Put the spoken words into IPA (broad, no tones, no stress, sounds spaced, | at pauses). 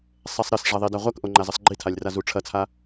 sˤ ɛ sˤ ɾ ɘ s ʐ ɐ ðˤ i d a ʁʷ ɐ k ʔ o ŋ͡ǃ a z ɘ sˤ ɡ͡ǃ i tʰ a lʲ r a z u ʈ͡ʂʰ ɐ t͡sʰ a